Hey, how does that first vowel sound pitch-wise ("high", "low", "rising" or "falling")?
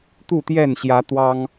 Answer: falling